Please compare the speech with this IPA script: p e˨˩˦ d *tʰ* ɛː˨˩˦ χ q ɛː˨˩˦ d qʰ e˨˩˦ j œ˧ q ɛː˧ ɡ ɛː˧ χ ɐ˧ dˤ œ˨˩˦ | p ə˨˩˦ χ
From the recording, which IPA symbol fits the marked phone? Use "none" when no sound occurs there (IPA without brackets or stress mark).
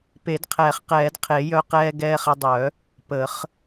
qʰ